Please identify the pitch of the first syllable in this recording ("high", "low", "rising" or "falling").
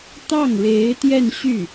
falling